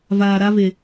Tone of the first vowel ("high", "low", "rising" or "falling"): low